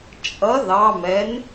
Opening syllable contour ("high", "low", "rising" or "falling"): rising